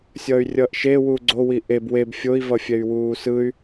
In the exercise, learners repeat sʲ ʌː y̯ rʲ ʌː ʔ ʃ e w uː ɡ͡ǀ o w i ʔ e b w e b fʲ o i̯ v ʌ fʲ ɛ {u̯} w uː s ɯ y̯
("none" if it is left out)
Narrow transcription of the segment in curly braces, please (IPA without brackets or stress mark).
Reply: y̯